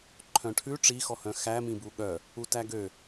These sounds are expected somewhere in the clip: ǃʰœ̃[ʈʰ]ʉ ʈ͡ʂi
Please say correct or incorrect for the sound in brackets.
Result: correct